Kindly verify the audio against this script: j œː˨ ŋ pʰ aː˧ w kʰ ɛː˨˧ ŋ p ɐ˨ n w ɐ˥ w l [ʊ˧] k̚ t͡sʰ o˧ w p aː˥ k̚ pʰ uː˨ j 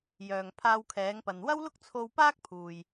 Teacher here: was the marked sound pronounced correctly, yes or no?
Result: no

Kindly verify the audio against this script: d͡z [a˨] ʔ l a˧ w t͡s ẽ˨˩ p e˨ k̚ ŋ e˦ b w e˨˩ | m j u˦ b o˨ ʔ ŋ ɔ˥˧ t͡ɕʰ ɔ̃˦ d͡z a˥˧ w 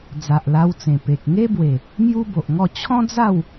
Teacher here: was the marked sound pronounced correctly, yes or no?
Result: yes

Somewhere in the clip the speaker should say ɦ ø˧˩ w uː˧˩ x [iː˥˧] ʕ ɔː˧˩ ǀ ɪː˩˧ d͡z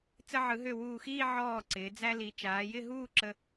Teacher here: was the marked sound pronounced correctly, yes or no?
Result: yes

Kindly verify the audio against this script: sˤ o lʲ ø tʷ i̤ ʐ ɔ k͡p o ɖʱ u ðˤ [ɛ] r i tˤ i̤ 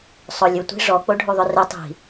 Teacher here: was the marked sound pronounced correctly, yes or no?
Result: no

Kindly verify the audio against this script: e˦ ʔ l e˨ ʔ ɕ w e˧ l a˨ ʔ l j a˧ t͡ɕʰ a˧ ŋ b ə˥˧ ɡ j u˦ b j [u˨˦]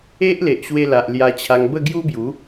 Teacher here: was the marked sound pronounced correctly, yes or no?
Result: yes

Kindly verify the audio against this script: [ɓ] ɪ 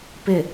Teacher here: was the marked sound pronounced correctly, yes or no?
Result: no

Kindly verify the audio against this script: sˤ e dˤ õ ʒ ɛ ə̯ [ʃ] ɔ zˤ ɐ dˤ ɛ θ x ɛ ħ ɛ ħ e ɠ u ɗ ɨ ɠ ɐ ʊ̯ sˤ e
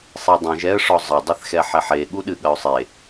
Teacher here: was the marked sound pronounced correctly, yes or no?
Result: no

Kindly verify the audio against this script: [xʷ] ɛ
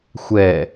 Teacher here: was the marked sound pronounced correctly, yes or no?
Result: yes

